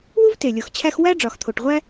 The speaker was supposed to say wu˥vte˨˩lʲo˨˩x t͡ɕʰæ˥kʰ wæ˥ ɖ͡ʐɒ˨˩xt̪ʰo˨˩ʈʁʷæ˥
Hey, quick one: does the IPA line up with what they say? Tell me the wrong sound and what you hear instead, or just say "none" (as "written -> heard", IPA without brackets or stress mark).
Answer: kʰ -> x